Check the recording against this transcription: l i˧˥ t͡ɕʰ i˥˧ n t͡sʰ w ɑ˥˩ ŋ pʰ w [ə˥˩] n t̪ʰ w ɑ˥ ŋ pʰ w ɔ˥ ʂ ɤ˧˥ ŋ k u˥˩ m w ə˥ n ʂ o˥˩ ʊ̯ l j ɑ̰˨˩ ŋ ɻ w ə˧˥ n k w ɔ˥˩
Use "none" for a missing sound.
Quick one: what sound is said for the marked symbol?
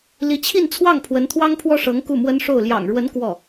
ə˧˥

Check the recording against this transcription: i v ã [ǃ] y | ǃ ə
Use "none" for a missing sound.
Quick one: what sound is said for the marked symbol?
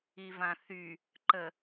θ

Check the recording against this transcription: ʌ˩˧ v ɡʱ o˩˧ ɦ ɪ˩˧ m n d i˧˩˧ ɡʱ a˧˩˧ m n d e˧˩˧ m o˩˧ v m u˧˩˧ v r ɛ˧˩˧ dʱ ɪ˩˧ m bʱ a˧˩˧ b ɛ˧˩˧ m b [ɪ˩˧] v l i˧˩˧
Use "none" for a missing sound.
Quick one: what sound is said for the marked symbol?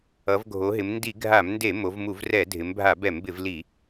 ɪ˧˩˧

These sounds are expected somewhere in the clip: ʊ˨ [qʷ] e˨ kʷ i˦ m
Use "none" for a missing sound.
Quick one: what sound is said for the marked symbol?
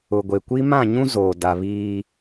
ɡʷ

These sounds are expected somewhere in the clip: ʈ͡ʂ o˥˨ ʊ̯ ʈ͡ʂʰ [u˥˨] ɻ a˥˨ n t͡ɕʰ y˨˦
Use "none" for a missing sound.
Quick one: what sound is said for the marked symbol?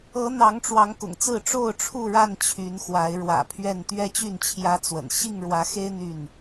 u˥˨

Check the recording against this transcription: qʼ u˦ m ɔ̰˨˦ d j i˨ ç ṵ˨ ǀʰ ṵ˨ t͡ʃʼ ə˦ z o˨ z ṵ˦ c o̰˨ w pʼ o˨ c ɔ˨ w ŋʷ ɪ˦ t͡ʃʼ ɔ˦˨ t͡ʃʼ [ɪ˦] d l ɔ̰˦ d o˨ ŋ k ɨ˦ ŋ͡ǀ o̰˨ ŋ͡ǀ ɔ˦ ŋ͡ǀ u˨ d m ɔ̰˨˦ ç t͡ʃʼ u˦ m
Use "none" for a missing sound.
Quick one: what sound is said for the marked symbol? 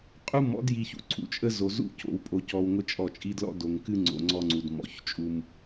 i˦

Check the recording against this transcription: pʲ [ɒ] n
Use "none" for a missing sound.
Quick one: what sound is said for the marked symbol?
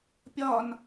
ɒ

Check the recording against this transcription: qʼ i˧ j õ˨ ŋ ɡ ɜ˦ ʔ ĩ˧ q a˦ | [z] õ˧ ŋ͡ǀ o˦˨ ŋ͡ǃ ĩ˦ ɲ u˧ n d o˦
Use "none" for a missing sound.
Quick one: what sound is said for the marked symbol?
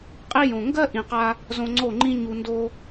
z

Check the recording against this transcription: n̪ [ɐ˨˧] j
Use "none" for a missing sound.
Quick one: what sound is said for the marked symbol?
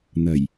ɐ˨˩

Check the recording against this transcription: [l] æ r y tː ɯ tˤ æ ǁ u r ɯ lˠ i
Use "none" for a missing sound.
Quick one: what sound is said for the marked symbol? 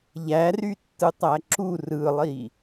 ʎ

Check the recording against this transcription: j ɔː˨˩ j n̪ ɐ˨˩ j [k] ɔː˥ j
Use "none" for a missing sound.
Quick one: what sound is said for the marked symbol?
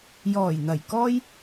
k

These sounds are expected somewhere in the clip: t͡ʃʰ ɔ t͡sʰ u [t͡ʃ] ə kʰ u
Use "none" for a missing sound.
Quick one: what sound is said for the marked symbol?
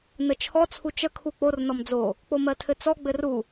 t͡ʃ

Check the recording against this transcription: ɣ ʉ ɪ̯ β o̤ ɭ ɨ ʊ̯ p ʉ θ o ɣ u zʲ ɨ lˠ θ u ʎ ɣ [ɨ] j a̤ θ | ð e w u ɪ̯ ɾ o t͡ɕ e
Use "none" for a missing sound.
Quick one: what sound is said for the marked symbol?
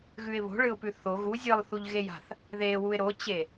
e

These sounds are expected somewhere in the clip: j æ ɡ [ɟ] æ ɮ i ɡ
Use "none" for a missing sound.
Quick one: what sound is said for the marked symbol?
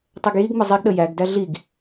d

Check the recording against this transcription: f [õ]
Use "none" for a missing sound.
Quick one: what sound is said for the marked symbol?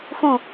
ũ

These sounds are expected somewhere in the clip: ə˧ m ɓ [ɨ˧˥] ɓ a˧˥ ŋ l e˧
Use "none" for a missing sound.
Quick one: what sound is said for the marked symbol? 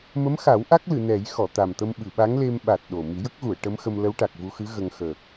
ɨ˨˩˨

